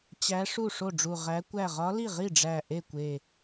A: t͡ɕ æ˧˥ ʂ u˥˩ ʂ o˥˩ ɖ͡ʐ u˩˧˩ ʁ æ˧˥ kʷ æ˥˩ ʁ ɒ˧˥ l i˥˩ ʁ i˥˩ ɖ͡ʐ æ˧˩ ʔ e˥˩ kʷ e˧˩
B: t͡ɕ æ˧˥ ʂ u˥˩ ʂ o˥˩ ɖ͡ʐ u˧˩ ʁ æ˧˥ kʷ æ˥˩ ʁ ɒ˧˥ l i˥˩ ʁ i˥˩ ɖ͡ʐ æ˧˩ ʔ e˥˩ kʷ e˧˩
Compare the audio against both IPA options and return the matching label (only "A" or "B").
B